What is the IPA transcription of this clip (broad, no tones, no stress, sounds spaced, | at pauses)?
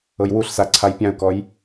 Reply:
ɤ j w u ɬ s a ǀʰ a j pʲ ã ʊ̯ k ɔ j